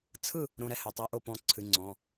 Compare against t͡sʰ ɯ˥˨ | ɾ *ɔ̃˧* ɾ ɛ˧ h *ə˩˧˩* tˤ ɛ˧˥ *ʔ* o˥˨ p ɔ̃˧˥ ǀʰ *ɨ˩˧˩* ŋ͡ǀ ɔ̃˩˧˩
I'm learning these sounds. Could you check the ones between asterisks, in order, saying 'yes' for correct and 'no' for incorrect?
no, no, yes, yes

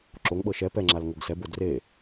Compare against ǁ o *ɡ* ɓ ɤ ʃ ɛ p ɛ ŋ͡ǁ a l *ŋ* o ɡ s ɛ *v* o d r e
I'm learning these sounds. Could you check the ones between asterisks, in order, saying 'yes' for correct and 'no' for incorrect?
no, yes, no

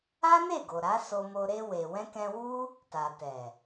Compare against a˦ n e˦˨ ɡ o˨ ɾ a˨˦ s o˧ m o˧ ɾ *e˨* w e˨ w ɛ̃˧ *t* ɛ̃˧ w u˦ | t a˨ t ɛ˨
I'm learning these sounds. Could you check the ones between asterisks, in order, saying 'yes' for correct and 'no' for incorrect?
no, no

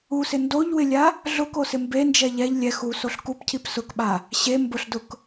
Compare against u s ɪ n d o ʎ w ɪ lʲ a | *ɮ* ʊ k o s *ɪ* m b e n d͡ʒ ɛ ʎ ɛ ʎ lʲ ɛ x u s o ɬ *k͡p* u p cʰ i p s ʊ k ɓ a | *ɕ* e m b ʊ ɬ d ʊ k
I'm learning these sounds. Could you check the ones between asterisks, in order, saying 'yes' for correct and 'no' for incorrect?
yes, yes, no, yes

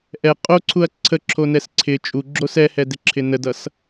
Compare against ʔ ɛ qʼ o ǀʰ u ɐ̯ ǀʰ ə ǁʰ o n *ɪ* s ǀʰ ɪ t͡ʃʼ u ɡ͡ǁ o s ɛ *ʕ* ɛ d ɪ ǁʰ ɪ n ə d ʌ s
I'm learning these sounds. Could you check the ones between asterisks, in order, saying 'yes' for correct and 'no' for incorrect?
no, no

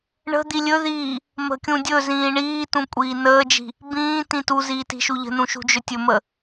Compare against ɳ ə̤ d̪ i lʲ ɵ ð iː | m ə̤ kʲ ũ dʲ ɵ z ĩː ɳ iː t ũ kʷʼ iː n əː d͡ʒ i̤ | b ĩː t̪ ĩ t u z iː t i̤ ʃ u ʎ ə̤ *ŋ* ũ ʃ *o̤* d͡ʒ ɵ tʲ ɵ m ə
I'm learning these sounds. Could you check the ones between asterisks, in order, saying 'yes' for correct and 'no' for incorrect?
no, no

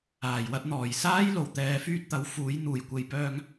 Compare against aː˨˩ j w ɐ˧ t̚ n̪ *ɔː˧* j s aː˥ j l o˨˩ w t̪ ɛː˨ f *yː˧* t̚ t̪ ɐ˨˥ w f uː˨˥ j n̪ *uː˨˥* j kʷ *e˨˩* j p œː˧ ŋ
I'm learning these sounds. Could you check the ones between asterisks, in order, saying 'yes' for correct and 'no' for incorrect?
no, no, no, no

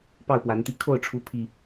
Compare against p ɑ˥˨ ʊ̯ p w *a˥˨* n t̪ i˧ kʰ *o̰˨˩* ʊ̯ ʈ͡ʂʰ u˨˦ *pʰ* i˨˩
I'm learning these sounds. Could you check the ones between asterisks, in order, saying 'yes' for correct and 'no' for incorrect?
no, no, yes

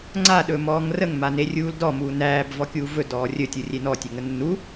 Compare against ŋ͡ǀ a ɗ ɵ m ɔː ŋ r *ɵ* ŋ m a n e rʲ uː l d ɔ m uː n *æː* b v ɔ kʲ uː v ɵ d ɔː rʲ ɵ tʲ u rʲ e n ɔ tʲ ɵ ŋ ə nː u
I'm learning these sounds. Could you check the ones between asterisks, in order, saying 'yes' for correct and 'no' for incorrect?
no, yes

